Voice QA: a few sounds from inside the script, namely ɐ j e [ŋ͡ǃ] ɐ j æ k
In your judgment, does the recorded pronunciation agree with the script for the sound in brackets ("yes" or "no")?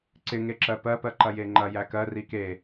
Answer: yes